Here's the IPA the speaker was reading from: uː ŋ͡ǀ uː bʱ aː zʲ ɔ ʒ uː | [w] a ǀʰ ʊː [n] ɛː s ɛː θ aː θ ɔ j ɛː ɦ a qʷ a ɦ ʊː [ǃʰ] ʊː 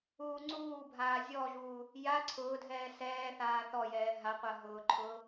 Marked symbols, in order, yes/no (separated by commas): no, no, yes